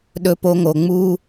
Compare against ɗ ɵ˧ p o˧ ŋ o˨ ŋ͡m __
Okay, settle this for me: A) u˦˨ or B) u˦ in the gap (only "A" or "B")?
B